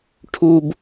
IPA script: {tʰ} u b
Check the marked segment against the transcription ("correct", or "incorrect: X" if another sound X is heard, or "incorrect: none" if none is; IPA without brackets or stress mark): incorrect: ʈʰ